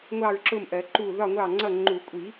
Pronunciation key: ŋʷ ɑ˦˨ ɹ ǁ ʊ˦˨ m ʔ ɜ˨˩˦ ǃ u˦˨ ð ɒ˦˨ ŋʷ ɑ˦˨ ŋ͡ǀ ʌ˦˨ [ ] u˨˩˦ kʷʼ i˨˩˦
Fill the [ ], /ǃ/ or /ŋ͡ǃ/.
ŋ͡ǃ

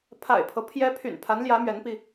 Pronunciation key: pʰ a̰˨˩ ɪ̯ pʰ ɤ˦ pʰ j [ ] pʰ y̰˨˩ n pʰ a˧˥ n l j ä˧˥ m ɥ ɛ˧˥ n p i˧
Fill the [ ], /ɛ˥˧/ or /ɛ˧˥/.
ɛ˧˥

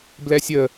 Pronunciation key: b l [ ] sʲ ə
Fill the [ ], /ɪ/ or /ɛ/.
ɛ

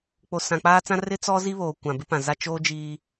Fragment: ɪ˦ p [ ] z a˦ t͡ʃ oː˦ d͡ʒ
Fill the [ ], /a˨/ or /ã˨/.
ã˨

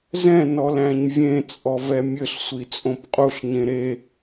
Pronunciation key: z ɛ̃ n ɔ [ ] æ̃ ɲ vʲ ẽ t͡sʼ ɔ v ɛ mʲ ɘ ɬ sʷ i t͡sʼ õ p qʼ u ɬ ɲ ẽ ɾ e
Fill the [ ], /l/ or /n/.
l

